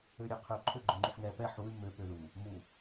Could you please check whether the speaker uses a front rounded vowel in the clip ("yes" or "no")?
yes